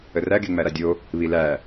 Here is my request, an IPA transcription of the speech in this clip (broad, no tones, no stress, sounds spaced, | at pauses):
ə r æ ɡ e ŋ͡m æ ɾ a dʲ o | β i l æ